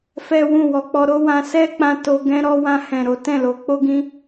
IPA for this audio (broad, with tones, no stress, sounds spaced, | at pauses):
f ɛ˦ w ũ˦˨ w ɔ˧ k͡p ɔ˧ ɾ o˦ w ã˧ s ɛ˦ k͡p ã˧ t o˧ ɡ ɛ̃˦ ɾ ɔ˧ w ã˧ h ɛ̃˨ ɾ o˨˦ t ɛ̃˦˨ l o˧ k͡p o˦ ɡ ĩ˦